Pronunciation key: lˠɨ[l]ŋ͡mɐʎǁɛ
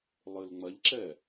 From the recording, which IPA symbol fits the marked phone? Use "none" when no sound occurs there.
l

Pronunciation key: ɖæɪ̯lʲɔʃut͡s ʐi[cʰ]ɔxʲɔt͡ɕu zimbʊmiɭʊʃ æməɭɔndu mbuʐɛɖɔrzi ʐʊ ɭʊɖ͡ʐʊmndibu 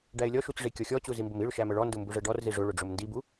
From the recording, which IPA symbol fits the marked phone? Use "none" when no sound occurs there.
kʲ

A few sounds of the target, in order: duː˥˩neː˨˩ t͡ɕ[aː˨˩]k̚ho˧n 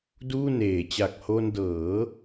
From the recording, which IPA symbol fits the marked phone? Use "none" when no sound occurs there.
a˨˩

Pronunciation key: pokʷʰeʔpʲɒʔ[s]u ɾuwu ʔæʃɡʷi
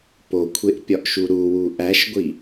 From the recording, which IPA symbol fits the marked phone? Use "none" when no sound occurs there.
ʃ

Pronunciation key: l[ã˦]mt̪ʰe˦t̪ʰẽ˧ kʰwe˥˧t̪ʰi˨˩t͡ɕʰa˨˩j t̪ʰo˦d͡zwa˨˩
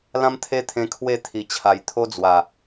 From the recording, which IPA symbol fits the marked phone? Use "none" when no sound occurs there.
ã˦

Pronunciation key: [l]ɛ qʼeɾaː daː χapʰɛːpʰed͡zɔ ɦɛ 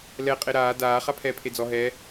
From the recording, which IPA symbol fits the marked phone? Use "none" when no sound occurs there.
l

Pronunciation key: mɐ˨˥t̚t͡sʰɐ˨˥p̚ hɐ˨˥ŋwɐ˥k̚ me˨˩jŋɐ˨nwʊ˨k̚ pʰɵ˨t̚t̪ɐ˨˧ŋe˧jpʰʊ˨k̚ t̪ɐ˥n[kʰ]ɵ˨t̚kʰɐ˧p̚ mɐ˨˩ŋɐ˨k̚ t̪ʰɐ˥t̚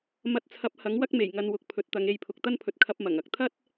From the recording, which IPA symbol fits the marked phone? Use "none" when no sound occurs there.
pʰ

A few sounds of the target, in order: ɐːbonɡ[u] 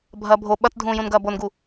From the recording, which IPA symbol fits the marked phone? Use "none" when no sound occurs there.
u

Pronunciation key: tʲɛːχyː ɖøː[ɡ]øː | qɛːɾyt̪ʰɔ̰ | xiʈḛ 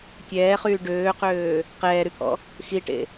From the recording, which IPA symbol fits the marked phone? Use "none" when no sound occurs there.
q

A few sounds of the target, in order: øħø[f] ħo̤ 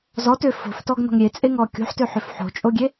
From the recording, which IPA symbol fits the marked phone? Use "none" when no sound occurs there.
f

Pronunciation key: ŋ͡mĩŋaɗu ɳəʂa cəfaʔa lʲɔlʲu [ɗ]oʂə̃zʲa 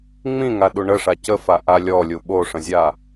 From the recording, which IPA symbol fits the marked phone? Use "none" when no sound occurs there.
ɓ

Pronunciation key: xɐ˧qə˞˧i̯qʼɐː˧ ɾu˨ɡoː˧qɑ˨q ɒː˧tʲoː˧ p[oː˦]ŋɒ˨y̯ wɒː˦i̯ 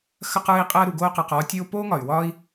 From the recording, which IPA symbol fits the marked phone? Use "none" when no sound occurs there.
oː˦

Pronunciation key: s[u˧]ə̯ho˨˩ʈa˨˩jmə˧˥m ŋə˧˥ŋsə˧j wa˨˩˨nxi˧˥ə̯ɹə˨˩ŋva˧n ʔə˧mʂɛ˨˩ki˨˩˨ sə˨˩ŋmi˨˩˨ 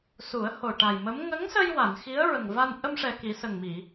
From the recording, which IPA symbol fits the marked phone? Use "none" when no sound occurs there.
u˨˩˦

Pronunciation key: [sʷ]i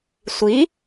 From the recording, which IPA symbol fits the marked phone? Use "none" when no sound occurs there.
sʷ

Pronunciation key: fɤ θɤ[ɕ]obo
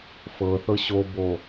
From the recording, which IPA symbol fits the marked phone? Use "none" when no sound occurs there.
ɕ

